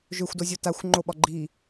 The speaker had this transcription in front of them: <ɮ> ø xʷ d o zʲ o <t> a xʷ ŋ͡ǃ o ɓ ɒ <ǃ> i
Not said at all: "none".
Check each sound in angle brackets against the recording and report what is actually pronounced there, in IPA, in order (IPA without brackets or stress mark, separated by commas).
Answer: ʒ, t, ɡ͡ǃ